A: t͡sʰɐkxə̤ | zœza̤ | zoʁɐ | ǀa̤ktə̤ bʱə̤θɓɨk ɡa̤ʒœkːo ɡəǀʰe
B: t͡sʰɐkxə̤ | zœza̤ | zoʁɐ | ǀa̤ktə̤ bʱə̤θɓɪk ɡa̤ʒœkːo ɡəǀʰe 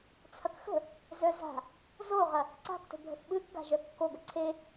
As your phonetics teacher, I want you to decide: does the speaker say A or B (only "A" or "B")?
A